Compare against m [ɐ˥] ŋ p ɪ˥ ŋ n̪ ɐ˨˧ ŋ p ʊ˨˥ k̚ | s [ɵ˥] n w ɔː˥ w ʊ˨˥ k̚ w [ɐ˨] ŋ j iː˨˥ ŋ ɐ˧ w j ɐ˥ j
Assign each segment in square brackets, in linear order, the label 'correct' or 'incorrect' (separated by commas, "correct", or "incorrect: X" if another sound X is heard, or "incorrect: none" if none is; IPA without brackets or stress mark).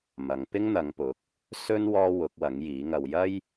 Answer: incorrect: ɐ˨˧, correct, incorrect: ɐ˨˥